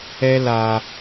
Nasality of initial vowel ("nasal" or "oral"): oral